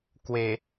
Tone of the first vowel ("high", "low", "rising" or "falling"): low